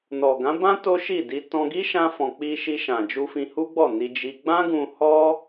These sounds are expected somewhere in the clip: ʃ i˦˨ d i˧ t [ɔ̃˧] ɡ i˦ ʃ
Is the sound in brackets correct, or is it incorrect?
correct